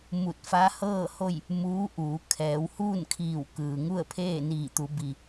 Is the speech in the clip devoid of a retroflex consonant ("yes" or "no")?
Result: yes